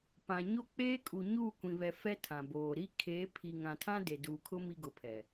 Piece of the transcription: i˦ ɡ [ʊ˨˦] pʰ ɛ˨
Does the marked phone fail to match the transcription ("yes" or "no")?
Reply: no